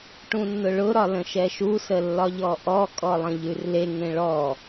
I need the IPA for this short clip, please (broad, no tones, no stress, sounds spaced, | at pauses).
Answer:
ʈ ũ nː ʊ ɭ ʊ ɾ ɒ l ə̃ ʃ ɛ ʃ u s ə lː ɒ ʎ ɔ ʔ ɔ kʼ ɔ lˠ ə̃ ʎ ʉ r l e ŋ ẽ ɭ ɔ